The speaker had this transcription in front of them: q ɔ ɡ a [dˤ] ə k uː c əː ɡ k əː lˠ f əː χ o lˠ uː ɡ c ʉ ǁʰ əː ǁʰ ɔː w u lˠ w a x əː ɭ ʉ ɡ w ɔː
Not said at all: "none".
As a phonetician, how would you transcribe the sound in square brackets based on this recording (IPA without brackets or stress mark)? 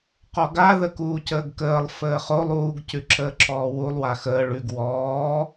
ð